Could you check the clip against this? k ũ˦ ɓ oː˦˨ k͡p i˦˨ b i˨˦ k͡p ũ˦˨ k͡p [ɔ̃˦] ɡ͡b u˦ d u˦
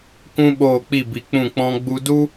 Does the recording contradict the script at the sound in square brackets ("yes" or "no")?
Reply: no